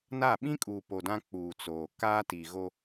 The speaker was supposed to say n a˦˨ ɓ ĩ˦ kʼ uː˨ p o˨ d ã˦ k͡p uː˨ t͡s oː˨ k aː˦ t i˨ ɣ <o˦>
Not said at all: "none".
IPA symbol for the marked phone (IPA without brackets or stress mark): o˦